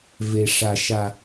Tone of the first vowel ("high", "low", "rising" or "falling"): low